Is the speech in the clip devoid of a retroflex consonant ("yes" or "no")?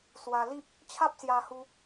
yes